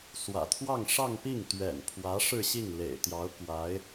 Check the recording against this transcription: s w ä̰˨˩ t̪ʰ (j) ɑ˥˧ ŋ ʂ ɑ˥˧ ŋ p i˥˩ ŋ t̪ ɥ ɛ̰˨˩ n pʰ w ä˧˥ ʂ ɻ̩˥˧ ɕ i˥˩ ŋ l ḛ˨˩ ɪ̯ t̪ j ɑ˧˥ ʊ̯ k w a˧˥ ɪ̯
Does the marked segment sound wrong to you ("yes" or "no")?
yes